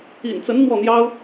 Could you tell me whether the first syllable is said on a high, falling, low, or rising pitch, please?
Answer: low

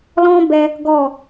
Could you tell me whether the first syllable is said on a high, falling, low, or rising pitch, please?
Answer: high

